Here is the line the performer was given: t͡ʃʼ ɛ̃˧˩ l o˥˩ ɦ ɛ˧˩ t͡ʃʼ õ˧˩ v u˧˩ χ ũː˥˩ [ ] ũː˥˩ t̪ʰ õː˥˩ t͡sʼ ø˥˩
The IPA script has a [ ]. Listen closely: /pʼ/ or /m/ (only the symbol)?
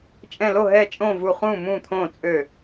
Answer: m